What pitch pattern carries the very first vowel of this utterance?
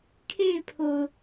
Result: falling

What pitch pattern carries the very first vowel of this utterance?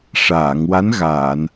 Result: low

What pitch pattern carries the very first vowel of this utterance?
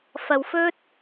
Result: low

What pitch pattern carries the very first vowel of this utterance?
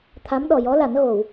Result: rising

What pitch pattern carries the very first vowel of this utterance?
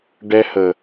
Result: high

